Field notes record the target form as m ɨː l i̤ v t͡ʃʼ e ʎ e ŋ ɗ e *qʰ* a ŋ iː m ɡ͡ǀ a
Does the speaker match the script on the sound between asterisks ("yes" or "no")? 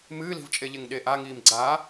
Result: no